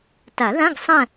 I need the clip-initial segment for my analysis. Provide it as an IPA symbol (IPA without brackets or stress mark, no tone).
t